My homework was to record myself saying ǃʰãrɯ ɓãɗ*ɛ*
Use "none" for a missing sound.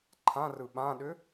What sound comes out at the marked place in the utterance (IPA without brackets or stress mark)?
ʏ